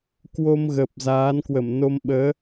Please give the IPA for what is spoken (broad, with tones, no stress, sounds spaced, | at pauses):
k w o˧ m ɣ əː˨˩ p̚ z aː˨˦ n k w ə˧˩ m n o˧ m ɓ əː˨˦